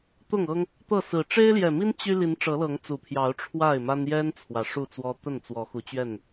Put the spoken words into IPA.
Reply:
t̪ ʊ˥˨ ŋ ɤ˦ ŋ | t̪ ɤ˥˨ s ɹ̩˨˩ ʈ͡ʂ e˦ ɪ̯ l j ɛ˨˩ m i˦ n t͡ɕ y˦ l i˨˦ n ʈ͡ʂ ɤ˨˦ l ɤ˨˦ ŋ t͡s u˨˩ pʰ j ɑ˨˦ ʊ̯ ʈ͡ʂʰ w a˥˨ ɪ̯ m a˦ n j ɛ˦ n t͡sʰ w ä˨˩ ʂ u˥˨ t͡s w ɔ˦ t̪ ə˥˨ n t͡s w ɔ˨˦ x u˨˦ t͡ɕ ɥ ɛ˥˨ n

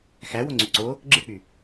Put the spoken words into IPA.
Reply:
x æ w o ŋ͡ǀ y ǀ o | ɡ͡ǁ ɯ k͡p y

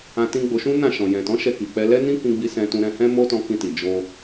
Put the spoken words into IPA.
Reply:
ã˧ t ĩ˧ ɡ͡b o˧ ʃ ũ˦ n ã˦˨ ʃ ɔ̃˨ j ɛ̃˨ t ɔ̃˨˦ ʃ ɛ˧ k i˨ k͡p ɛ˧ l ɛ˦ n ĩ˦ k ĩ˧ ɡ͡b i˧ s ɛ̃˧ t ũ˧ ɾ ɛ̃˧ h ɛ̃˦ m o˦ t ɔ̃˧ k ĩ˧ t i˨ d͡ʒ o˧

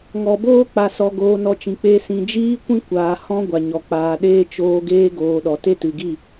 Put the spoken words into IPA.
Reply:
ŋ ɔ˨ b oː˦ k͡p a˧ s ɔ˧ ɡ oː˧ n ɔ˧ t͡ʃ ĩ˨ k͡p e˧ s ĩ˨ d͡ʒ iː˦ kʷ ĩ˦ kʷ aː˨ h ɔ̃˧ ɡʷ a˨ ɲ ɔ˨ k͡p aː˨ ɗ eː˦ t͡ʃ oː˧ ɡ eː˦ ɡ oː˧ ɗ ɔ˨ t e˦ t ɨ˨ ɡ i˦˨

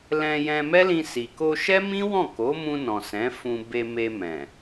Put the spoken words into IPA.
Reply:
l ɛ̃˧ j ɛ̃˧ m ɛ˦ l ĩ˧ s i˨ k o˧ ʃ ɛ˦ m ĩ˦ w ɔ̃˦˨ k o˨˦ m ũ˧ n ɔ̃˨ s ɛ̃˨˦ f ũ˧ b e˧ m e˧ m ɛ̃˨

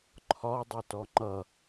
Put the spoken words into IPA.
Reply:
ǃʰ ɒ dˤ ɛ t ɔ ŋ͡ǃ ʌ

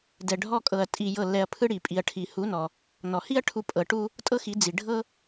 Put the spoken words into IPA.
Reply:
d ɛ˨ ɖʱ ɔ˧ kʼ ɤ˨ ɐ̯ tʼ i˨ j ɤ˦˨ lː ɛ˧ ɐ̯ pʰ ɯ˧ ɽ i˨ pʼ i˨ ɐ̯ ʈʰ i˨ h u˨˦ n ɔ˨ | n ɔ˨ h i˦ ɐ̯ ʈʰ u˧ pʼ ɤ˨ ʈ u˦ | tʼ ɤ˦ x i˨˦ d͡z i˨ ɖʱ ɤ˦

